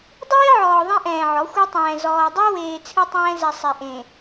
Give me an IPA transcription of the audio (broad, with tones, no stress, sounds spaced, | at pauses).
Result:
dˤ eː˦ ʕ ɔː˨ ðˤ ẽ˦ ʔ ɛ̃ː˨ ʕ ɔ˨˦ xʷ ɛ˦ tˤ ɛ̃ː˨ z ɔː˨ dˤ ɛ˦ w eː˨ t͡sʰ ɨ˦ tˤ ɛ̃ː˦ z ɛ˨ sˤ e˨ ʔ ẽ˨